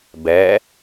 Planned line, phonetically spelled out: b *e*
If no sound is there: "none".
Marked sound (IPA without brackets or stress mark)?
ɛ